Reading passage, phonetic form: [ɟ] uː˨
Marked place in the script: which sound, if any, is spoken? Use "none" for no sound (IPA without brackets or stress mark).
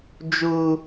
d͡ʒ